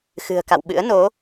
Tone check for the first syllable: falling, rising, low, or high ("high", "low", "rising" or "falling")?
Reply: low